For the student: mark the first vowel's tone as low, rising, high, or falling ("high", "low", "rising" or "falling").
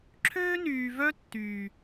high